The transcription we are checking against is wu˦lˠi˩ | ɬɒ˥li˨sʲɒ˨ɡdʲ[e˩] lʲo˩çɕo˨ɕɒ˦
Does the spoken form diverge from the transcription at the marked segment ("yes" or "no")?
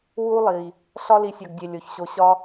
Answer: no